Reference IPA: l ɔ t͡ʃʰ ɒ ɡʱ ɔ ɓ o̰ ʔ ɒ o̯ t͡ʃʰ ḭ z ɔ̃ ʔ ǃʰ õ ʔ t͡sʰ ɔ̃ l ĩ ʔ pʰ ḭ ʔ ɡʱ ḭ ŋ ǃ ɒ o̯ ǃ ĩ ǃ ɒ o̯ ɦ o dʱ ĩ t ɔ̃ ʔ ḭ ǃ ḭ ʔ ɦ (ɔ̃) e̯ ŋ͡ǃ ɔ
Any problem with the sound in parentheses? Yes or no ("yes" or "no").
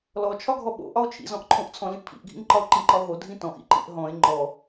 no